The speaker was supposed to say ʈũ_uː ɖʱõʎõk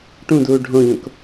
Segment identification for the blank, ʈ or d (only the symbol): d